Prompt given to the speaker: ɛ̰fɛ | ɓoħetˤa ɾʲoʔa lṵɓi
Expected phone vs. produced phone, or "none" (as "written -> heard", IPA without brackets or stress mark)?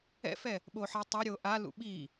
none